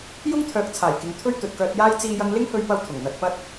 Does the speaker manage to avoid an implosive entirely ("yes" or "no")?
yes